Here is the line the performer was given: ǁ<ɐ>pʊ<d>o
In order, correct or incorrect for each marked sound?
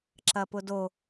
correct, correct

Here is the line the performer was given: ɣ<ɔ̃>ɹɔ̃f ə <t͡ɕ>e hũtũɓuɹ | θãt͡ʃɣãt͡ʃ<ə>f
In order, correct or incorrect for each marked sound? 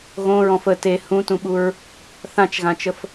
incorrect: õ, incorrect: t, correct

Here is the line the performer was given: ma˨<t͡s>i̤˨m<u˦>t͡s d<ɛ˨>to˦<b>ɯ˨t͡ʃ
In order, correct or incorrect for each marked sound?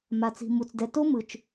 correct, incorrect: u˨, correct, incorrect: m

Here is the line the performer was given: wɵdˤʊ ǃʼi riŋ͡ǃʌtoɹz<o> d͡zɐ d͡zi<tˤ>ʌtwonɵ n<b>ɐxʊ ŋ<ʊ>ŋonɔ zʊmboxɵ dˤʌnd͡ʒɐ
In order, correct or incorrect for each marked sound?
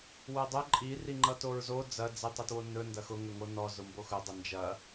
correct, correct, incorrect: d, incorrect: ɵ

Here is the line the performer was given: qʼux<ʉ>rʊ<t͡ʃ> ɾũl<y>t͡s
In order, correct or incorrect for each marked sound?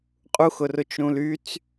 incorrect: ʊ, correct, correct

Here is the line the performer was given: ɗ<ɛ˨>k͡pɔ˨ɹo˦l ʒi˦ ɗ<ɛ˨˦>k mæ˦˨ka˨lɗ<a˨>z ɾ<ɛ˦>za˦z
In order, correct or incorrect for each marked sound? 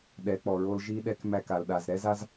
incorrect: ɛ˨˦, incorrect: ɛ˦, correct, correct

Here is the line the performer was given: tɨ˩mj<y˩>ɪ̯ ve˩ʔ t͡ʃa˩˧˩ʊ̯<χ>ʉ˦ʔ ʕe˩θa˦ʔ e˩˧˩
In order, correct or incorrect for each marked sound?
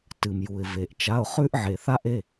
incorrect: u˩, correct

